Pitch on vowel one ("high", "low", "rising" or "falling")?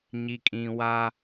low